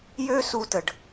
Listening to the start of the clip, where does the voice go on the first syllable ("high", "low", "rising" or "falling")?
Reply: high